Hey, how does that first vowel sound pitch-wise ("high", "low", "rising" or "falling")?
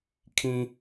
low